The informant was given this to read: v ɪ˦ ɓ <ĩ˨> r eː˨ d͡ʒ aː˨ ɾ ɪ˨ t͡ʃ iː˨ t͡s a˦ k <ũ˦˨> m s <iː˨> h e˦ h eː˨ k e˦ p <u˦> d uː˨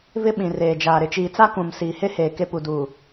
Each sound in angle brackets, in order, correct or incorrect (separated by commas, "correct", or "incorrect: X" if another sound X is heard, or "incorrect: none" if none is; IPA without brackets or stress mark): correct, incorrect: ũ˨, correct, incorrect: u˨